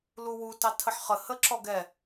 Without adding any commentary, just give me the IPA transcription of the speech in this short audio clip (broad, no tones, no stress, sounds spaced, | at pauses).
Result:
l u w u t ɑ tʰ ə ħ χ ə h ə ǁ ɔ ɡ ɛ